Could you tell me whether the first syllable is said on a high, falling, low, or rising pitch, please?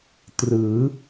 rising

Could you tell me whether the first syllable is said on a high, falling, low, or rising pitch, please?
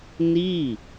falling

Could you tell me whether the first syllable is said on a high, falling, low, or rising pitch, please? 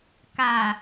low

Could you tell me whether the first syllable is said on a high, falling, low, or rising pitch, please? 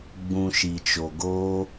low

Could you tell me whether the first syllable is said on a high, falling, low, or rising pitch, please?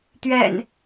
low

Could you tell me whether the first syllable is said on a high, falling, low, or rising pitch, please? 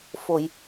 low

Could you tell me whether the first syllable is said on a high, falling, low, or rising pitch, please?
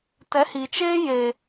rising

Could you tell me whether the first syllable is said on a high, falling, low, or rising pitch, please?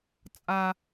high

